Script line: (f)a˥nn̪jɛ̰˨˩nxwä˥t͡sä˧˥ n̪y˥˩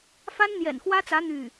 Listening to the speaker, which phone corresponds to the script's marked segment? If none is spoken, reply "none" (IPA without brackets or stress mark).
f